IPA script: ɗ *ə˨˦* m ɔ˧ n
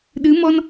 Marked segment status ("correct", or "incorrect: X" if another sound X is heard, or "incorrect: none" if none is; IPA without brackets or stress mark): incorrect: ɨ˨˦